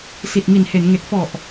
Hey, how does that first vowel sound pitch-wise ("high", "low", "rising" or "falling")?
low